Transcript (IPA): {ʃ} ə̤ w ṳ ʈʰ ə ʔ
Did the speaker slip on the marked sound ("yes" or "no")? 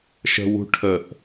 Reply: no